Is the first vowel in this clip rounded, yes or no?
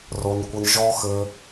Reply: yes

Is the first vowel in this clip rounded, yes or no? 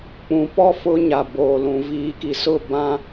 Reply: yes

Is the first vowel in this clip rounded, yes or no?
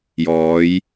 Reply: yes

